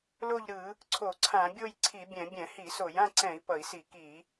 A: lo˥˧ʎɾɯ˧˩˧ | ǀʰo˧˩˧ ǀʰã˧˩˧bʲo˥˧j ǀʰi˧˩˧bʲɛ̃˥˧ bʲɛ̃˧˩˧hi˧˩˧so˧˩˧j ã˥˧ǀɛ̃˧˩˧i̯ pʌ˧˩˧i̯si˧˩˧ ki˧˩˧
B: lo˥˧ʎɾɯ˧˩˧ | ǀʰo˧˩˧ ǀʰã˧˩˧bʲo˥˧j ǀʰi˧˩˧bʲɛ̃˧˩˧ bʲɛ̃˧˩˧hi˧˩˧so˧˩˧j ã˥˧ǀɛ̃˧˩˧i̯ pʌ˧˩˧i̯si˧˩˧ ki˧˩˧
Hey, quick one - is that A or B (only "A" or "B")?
B